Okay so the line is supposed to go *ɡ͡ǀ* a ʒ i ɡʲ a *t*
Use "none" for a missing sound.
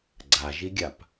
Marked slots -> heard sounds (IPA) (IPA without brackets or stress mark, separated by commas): ɡ͡ǀ, p